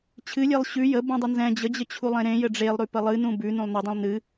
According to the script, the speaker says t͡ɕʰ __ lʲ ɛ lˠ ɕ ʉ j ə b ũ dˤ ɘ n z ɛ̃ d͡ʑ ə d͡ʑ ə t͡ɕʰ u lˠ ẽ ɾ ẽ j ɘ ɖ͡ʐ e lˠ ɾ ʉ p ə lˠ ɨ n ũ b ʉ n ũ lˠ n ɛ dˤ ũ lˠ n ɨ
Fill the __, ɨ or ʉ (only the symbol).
ɨ